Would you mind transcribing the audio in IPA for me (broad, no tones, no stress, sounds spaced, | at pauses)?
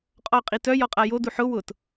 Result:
qʼ ɔ qʼ i t œ j ɔ qʼ a j o d u ħ ʊ w ʊ t